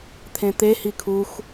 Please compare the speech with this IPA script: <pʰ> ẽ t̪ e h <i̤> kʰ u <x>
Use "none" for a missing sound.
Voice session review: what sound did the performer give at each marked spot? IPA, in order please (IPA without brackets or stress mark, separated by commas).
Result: t̪ʰ, i, x